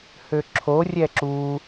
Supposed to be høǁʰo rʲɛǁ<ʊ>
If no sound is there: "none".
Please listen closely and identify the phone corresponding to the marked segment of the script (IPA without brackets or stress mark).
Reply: u